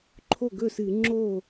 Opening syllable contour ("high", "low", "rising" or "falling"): falling